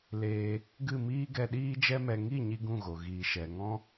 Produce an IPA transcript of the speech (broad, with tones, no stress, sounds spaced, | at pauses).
l eː˧ | ɡ ɨ˦˨ m iː˦ ɡ ɛ˧ ɗ iː˦ d͡ʒ ɛ˦ m ɛ˧ ŋ i˦˨ ɲ i˧ ɡ ũ˦˨ ɣ o˨ ɣ iː˨ ʃ ɛ˨ ŋ ɔ̃˦